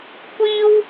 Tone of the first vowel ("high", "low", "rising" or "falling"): high